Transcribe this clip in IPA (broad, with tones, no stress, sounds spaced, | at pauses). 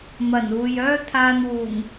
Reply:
m ɐ˨˩ n uː˨ j œː˥ t̪ʰ aː˧ n w uː˨˩ ŋ